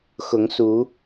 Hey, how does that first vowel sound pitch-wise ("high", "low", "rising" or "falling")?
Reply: rising